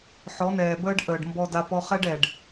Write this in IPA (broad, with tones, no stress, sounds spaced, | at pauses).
ħ ɔ˨˦ n ɛː˨ b əː˦ ɖ ʔ əː˨ ɖ m b ɔ˧ d a˧ p ɔ˧ χ ɛ˦ ɖ ɛ˨ ɖ